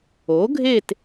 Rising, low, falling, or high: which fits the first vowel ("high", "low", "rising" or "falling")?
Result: rising